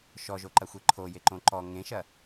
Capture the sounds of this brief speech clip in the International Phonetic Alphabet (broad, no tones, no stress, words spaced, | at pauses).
ʃɔʒoǃɐxʷe ǃʰo jeǃõǃɔ ŋẽʃɐ